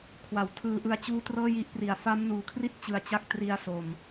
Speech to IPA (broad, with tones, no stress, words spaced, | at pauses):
kʰwa˩˦wtʰɯː˧ ʔɯ˦˥a̯t͡ɕuː˥˩ trɤː˥˩ji˦˥ʔpri˨˩a̯ fa˦˥mnuː˨˩kʰri˥˩t̚ t͡ɕɯ˧a̯t͡ɕa˥˩k̚ tri˧a̯ so˨˩m